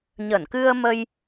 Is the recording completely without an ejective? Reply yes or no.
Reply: yes